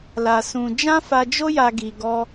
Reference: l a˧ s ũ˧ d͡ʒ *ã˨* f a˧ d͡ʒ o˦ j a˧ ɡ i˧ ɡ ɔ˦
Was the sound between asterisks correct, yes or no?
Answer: no